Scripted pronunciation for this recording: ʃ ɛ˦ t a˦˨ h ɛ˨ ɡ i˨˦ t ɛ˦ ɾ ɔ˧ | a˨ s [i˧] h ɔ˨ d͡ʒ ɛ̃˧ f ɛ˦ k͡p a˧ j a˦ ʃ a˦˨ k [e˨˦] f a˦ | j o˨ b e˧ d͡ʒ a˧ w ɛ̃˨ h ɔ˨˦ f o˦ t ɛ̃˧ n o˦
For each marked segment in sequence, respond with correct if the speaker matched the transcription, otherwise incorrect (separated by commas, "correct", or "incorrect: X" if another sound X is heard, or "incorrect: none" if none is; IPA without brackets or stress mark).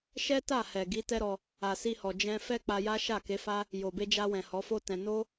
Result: correct, correct